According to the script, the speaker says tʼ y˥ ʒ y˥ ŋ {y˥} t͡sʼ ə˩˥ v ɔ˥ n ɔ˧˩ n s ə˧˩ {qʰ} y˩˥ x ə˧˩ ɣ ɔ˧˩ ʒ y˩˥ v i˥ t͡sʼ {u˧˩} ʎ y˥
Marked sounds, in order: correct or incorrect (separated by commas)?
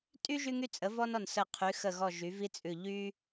correct, correct, incorrect